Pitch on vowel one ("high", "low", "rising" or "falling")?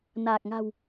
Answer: low